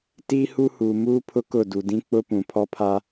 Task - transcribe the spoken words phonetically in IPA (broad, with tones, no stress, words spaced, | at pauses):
tiː˦hu˦huː˨ muː˦pʰʊ˦ kʊ˦˨du˨dĩ˦ k͡pʊ˦pũ˨ pʰɔ˦pʰa˦